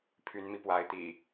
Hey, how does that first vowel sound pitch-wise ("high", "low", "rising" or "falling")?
rising